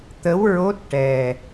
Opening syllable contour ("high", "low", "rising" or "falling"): rising